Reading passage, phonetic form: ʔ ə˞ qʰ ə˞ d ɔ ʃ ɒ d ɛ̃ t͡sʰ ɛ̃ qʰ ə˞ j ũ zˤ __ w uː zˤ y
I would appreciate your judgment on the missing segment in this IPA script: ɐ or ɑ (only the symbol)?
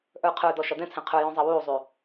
ɑ